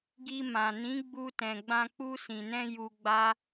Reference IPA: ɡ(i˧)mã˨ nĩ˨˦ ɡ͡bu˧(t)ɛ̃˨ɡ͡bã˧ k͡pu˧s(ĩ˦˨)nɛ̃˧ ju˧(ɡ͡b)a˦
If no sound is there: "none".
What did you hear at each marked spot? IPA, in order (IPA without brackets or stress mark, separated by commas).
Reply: i˧, t, ĩ˨, ɡ͡b